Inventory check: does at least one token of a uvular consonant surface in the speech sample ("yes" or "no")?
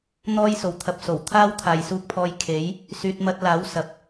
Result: no